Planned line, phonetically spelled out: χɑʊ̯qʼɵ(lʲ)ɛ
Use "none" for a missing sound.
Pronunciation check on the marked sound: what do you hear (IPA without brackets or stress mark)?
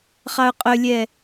lʲ